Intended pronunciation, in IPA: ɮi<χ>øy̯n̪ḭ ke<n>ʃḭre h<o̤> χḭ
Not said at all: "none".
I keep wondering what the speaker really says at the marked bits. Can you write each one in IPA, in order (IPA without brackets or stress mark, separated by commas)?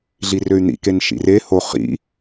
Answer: r, n, o